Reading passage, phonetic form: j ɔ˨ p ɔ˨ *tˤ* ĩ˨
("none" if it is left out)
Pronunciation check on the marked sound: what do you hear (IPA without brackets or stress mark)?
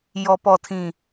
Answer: tʰ